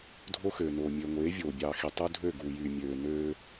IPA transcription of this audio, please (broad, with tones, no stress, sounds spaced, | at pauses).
dʱ o˦ x øː˨ n oː˨ mʲ ø˨ ŋʷ eː˨˦ vʲ oː˨ bʲ ɑː˨ x i˨ tˤ u˦ dʱ ø˦˨ ɡ uː˨ j yː˨ mʲ øː˨ n øː˦